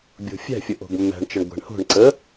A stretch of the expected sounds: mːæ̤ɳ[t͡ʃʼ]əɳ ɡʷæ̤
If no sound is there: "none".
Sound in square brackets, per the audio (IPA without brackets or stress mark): t͡ʃ